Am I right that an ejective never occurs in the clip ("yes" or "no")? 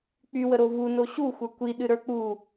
yes